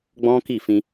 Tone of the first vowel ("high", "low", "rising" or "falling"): high